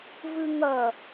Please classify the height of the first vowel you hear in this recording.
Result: high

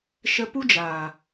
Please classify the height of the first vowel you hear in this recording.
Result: mid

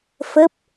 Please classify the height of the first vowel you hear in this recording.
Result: mid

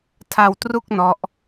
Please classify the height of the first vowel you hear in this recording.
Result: low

